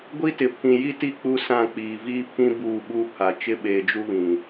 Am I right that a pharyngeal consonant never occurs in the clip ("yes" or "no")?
yes